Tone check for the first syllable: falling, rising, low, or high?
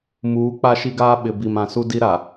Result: rising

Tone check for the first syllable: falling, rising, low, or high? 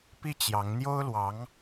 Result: falling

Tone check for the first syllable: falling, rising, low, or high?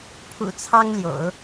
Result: low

